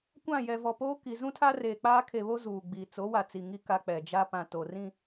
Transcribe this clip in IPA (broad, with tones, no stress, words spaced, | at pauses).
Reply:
kʷã˦˨ jɛ˨vɔ˨poː˦ ki˨ zũ˦tʰa˦reː˨ k͡paː˦kʰe˨βo˦ zuː˨ɡ͡bi˨ t͡so˨˦ wa˨t͡si˨ŋi˦˨ ka˦k͡pɛ˨ d͡ʒa˦pã˨ to˨rĩ˦˨